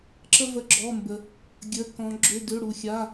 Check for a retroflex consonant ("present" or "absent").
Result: present